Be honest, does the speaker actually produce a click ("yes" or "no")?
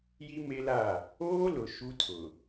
no